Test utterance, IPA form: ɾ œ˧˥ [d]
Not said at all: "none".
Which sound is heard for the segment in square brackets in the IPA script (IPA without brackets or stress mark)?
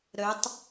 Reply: tˤ